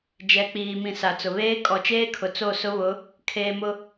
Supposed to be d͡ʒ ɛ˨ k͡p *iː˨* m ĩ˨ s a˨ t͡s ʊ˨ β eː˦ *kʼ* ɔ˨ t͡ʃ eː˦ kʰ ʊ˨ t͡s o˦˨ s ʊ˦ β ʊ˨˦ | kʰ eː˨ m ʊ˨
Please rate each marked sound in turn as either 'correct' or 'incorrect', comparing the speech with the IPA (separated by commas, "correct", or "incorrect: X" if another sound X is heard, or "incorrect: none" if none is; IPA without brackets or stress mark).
correct, correct